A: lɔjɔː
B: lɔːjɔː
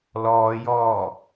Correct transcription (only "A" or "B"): B